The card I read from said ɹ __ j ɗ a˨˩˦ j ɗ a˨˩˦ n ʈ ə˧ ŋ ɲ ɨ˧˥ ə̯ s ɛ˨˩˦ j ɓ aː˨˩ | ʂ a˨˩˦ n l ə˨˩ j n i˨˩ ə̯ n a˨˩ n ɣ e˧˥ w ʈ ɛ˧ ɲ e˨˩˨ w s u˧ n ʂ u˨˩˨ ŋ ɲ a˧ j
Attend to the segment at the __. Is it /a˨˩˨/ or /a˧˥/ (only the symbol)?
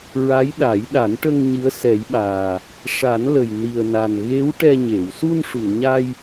a˧˥